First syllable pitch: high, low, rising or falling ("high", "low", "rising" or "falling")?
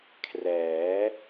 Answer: rising